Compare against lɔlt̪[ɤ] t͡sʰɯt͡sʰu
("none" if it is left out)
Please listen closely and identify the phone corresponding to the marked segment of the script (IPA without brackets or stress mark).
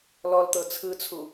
ɤ